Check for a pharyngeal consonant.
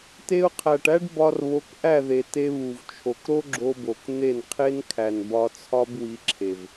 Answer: absent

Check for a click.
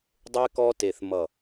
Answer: absent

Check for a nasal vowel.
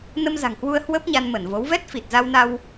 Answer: absent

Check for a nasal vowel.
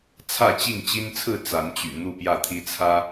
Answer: absent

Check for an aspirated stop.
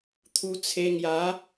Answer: present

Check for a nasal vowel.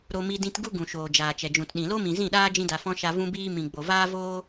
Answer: present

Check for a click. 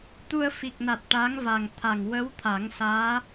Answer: absent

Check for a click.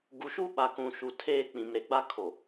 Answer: absent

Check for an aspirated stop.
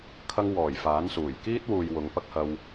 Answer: present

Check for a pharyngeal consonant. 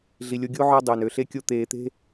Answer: present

